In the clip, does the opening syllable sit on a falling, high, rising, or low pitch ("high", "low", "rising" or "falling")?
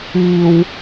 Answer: high